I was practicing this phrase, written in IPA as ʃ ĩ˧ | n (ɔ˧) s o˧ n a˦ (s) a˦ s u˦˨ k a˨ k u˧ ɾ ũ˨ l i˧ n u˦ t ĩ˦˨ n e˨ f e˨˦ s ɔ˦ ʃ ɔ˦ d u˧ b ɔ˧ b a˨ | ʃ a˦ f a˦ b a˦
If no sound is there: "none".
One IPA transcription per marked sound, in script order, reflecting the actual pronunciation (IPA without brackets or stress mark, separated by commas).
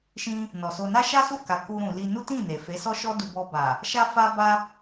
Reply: ɔ˨, ʃ